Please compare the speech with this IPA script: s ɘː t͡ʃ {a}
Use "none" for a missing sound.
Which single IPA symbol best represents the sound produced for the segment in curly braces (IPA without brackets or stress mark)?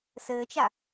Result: a